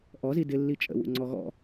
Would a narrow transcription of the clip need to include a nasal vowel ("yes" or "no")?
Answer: no